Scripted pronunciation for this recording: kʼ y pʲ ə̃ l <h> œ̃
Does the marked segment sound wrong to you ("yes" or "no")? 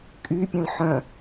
yes